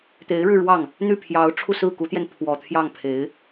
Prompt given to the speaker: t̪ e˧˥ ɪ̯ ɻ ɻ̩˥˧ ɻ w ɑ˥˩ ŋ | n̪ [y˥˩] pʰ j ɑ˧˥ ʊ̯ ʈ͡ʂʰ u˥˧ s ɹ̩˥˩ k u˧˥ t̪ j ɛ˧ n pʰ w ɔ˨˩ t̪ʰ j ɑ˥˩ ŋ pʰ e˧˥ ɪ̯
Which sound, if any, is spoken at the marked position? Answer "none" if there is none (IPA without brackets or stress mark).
y˥˩